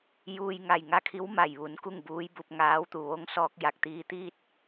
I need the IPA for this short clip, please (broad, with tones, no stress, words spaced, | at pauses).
juː˧jŋa˧˩j ŋa˧˥kʰi˧˥w ma˧˩jʋu˩˧n ku˥˨ŋ buː˧˥jbu˧p̚ ŋaː˧˥wt̪u˧˩ ʋo˧˥ŋsɔː˧k̚ ja˧˩k̚t̪iː˧t̪iː˥˨t̚